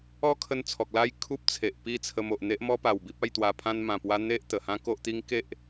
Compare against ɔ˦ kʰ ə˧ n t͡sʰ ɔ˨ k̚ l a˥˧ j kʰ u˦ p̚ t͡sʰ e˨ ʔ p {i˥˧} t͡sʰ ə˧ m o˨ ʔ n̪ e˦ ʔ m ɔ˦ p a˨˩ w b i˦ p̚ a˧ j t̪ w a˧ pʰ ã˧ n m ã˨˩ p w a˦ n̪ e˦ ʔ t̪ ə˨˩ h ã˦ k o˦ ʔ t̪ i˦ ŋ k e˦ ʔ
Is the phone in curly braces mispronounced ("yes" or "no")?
no